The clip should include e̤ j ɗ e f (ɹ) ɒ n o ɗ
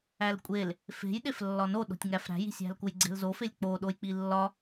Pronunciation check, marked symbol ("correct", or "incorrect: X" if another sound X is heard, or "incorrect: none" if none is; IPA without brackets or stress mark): incorrect: lː